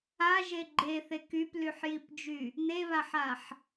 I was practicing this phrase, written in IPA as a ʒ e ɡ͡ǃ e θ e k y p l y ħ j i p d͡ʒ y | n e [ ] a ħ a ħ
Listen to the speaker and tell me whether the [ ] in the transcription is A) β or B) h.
A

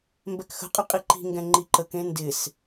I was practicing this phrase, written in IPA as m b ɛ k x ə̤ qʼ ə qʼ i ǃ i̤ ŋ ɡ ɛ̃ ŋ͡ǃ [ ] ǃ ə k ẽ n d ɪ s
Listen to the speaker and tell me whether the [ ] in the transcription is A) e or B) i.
B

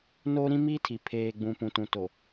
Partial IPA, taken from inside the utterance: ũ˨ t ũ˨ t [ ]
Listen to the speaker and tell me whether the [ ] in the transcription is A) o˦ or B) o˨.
B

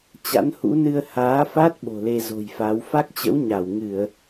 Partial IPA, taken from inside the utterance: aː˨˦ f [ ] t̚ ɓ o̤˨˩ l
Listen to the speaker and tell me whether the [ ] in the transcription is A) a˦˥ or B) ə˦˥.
A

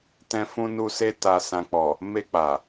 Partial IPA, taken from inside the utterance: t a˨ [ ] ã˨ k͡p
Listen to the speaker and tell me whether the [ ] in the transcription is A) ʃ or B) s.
B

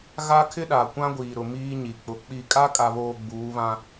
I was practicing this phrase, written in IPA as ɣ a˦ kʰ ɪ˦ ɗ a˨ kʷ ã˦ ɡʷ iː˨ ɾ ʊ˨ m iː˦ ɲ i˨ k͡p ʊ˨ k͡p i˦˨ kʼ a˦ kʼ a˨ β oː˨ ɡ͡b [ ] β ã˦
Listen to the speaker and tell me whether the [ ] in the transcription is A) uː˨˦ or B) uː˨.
A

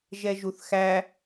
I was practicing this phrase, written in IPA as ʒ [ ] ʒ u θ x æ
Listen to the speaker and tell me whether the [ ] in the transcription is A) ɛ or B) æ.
A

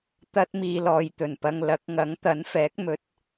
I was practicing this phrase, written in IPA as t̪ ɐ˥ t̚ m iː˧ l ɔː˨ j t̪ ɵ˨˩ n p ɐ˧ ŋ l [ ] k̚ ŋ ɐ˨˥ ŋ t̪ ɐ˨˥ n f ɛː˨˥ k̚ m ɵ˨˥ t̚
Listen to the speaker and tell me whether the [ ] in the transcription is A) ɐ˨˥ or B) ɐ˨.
A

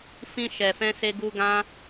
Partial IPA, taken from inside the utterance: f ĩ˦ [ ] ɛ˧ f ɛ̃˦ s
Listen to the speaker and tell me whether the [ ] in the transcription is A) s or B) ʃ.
B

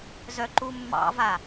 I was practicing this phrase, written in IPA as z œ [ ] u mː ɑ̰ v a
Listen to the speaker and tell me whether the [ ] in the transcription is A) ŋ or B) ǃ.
B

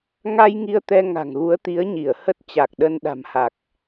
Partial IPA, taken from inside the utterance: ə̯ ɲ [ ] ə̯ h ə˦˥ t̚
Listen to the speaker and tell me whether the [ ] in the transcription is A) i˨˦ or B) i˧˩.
B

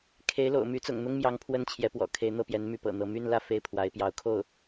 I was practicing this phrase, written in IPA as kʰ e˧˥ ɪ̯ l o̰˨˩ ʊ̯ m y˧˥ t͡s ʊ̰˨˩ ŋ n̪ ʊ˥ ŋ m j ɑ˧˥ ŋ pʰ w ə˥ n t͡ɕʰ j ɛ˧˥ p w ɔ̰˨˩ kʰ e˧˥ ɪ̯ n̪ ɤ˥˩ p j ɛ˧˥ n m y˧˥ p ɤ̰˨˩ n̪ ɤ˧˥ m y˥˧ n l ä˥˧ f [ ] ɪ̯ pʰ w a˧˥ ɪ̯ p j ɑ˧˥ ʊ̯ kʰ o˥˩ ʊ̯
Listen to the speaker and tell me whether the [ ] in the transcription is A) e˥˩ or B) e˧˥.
A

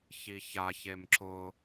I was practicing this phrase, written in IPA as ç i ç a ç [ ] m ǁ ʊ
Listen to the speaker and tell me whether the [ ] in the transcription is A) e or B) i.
A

